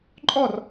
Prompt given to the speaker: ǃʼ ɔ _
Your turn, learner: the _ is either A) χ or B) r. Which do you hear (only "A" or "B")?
B